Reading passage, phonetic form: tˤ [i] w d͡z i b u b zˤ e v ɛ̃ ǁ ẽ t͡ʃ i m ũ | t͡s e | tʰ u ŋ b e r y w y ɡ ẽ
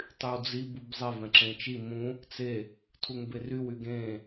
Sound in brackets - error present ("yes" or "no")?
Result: yes